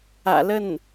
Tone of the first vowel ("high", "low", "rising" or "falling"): low